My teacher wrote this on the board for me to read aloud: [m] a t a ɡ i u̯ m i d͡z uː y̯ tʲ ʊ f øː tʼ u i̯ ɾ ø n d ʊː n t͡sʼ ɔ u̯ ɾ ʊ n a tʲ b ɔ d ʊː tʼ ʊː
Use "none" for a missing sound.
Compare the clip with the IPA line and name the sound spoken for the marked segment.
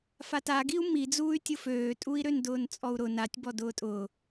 f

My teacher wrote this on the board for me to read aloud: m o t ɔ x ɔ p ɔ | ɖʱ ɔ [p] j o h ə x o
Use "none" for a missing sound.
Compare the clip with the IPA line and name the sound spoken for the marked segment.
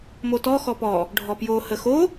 p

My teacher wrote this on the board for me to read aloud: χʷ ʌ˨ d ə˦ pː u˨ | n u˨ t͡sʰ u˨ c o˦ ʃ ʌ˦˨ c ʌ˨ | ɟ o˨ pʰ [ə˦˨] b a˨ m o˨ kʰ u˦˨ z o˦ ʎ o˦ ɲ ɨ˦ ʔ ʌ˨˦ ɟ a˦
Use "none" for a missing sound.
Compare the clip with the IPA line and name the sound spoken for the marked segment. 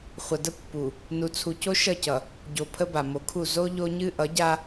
ə˦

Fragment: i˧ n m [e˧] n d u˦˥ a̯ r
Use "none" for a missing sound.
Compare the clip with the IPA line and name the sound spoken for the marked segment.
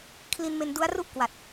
e˧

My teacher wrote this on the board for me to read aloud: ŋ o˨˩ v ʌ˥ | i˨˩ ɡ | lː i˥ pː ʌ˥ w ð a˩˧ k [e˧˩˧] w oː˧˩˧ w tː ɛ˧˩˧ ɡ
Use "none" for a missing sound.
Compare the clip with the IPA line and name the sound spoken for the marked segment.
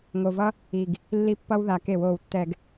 e˧˩˧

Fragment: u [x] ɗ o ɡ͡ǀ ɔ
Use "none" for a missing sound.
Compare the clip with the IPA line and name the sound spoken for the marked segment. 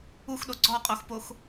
x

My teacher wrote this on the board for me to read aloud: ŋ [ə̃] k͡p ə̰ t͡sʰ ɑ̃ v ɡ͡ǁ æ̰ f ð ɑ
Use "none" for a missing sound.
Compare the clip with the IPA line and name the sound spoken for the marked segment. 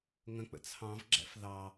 ə̃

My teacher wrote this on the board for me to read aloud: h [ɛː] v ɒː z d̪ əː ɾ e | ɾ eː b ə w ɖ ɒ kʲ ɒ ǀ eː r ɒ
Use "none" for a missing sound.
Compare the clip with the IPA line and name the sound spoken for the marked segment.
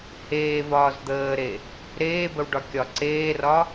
eː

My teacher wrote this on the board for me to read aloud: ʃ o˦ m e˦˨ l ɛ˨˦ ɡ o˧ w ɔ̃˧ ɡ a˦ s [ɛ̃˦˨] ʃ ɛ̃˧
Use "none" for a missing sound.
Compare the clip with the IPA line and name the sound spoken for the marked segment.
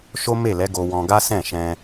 ɛ̃˦˨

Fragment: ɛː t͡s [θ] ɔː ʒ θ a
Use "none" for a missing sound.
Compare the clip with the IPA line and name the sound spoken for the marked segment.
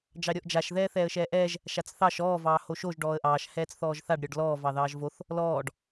θ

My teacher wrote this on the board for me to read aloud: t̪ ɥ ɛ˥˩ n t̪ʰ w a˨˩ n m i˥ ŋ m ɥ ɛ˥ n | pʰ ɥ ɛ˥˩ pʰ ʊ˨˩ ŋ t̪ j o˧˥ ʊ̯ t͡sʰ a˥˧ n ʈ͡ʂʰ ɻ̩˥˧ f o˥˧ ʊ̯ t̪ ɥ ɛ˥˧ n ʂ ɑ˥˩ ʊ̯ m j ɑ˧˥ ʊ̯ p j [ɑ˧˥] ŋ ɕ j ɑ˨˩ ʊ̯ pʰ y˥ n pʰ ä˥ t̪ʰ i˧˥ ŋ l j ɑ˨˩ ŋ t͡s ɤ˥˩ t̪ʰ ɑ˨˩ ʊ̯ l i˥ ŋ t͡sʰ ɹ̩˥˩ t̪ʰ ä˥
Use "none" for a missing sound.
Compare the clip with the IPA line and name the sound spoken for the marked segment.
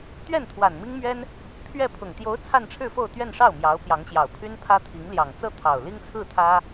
ɑ˧˥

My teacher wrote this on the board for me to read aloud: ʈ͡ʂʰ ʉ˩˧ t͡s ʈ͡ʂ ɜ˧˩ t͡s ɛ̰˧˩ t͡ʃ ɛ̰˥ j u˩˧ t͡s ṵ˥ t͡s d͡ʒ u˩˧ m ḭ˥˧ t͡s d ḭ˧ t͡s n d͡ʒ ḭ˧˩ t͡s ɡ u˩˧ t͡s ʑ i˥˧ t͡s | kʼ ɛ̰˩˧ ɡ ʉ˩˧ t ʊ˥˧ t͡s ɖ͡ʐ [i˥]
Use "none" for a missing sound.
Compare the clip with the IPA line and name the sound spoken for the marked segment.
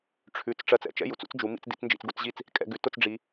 i˩˧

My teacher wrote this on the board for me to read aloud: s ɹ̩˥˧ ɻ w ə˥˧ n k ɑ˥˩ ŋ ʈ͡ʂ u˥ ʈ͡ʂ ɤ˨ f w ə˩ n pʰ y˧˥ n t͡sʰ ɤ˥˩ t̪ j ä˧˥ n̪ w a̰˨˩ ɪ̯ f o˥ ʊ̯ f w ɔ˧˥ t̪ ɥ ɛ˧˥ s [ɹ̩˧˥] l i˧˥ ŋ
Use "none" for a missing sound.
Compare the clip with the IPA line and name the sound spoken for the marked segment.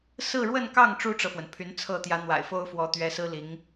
ɹ̩˥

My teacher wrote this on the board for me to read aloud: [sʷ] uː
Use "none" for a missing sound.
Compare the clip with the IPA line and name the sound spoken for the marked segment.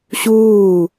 ɕ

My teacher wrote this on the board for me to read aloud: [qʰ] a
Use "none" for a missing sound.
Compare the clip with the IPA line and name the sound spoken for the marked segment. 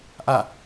ʔ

